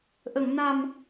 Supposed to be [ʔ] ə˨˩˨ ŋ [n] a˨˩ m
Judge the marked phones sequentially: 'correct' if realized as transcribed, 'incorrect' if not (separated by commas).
correct, correct